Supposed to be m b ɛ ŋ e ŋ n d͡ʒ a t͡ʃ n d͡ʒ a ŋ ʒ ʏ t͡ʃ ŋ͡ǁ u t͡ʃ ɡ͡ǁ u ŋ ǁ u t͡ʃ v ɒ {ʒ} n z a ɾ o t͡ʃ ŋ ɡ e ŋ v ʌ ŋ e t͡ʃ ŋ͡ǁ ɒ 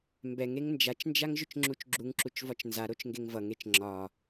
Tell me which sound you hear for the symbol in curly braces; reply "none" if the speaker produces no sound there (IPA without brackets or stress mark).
t͡ʃ